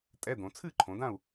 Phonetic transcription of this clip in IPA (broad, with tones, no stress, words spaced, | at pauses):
tʼɛ˧˥˧d̪õ˩˧ t͡sʰɨ˦˨ǃʰõ˩˧dã˦˨u̯